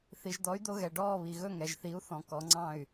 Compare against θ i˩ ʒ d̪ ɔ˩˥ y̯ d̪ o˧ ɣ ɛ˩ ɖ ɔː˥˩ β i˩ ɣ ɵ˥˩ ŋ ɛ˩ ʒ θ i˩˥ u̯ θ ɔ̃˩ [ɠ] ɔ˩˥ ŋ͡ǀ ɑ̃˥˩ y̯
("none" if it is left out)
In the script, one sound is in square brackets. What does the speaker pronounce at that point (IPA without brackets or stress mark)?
k